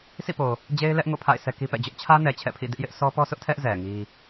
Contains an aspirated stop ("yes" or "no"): yes